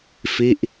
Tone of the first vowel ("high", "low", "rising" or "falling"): falling